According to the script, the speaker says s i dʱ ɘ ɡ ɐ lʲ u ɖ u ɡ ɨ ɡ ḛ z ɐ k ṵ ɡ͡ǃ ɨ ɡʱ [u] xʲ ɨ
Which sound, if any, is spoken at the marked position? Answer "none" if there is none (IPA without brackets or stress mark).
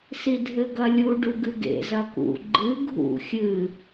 ṵ